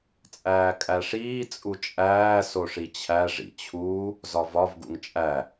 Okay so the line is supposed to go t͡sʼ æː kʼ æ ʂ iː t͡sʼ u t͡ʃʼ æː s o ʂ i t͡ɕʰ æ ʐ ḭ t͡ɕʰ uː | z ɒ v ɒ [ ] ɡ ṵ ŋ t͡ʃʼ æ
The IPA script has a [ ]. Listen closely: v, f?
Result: v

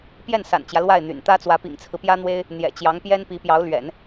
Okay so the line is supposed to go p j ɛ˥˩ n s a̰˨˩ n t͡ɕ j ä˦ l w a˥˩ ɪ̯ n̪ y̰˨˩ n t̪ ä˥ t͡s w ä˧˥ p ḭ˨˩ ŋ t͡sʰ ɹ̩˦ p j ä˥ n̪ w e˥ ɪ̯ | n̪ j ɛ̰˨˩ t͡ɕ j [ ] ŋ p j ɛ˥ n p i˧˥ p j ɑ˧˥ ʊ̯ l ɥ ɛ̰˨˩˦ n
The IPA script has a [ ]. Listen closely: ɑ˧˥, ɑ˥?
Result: ɑ˧˥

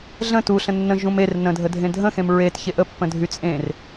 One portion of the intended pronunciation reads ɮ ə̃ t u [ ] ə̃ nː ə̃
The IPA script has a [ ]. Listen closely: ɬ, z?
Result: ɬ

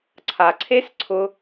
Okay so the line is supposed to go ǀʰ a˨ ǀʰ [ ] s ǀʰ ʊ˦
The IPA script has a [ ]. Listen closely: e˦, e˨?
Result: e˦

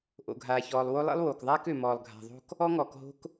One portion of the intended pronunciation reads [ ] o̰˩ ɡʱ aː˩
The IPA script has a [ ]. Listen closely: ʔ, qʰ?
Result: ʔ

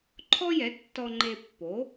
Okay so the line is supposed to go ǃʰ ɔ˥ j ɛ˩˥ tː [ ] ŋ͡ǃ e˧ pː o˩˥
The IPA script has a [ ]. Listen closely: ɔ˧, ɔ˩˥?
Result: ɔ˧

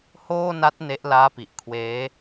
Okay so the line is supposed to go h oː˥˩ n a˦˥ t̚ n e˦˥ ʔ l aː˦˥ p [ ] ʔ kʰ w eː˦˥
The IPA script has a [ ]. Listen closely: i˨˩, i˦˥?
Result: i˨˩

